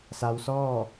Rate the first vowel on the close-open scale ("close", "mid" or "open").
open